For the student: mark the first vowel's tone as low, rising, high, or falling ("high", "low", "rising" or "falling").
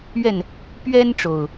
falling